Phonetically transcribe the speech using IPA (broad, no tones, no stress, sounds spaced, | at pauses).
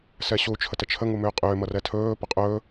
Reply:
s ɛ ɕ u t͡ʃʰ ə t ə t͡ʃʰ ə ŋ u m ʏː qʼ ʏː m ʌ r ɛ tʰ ɵː p ʌ qʼ ɵː